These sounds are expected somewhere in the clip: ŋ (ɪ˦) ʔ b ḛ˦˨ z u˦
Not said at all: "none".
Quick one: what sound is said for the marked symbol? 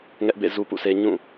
ɛ˦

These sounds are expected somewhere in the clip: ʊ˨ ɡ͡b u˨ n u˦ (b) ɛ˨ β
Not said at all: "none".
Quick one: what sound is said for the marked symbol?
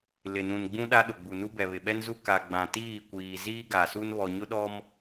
b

